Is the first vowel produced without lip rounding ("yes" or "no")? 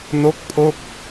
no